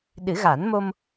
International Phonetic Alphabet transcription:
ɗ ɨ˨˩˦ ɣ a˨˩˦ n m o˧ m

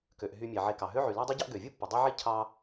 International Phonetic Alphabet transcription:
k ø˩ ʔ ɦ y˨ mʲ e˩ ʕ e˨ k ɑ˩ ɦ ø˦ ʕ y˩ l æ˦ dˤ y˦ ɟ ɑ˦ ʔ ɡ ø˩ vʲ ɯ˥ pː ɯ˩ dˤ ø˥ ʕ i˥ cʰ ɑ˥

